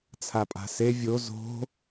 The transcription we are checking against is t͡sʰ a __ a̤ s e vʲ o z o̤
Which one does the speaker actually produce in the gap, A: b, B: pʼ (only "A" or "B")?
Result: B